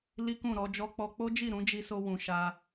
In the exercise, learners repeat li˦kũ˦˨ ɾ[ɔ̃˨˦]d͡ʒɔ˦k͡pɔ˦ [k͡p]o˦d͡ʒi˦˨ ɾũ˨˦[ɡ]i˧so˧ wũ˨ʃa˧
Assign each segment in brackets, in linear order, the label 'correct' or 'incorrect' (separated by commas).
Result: incorrect, correct, incorrect